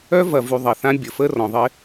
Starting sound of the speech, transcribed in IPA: œ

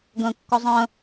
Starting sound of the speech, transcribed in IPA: ɡ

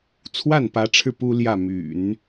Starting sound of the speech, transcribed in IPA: t͡sʰ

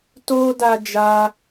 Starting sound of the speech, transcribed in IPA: t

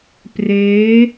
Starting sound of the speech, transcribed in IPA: p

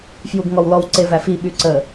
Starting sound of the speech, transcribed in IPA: f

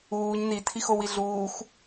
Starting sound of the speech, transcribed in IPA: uː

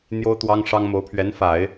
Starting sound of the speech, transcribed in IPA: n̪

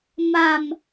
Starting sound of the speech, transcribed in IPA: m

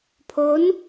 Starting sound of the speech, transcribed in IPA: pʰ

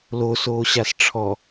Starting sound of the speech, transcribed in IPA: l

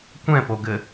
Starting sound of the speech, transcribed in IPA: kʷ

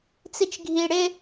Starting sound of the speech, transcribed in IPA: t͡s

